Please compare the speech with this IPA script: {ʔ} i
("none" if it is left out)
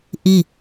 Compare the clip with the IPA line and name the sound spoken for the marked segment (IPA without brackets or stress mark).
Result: ʔ